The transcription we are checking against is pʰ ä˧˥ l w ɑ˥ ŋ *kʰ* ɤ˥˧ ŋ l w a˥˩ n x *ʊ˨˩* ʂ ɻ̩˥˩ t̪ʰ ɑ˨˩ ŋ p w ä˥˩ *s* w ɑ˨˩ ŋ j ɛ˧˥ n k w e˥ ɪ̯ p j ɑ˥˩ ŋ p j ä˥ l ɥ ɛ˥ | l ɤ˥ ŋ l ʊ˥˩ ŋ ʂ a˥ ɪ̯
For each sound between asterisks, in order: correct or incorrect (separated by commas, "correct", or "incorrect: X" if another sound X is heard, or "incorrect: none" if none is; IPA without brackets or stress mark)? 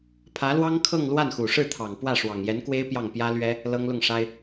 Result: correct, incorrect: u˨˩, incorrect: ʂ